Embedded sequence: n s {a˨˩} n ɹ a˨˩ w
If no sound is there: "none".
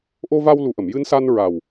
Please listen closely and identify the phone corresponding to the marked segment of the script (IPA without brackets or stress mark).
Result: a˧